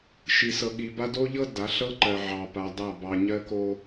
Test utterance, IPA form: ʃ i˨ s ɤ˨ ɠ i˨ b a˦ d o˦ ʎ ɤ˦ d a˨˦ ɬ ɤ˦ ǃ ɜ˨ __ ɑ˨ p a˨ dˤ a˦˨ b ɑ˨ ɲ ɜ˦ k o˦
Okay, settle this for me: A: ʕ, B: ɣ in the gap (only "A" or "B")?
A